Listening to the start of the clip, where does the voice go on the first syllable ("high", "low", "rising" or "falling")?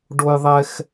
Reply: high